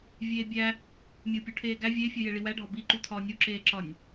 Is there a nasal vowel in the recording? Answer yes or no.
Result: no